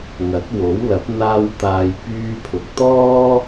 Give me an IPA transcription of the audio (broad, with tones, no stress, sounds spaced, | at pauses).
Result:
ŋ ɐ˨˥ t̚ w o˨˥ w l ɐ˨˥ p̚ n̪ aː˧ w t̪ aː˨ j p yː˧ pʰ ʊ˨ k̚ t̪ ɔː˥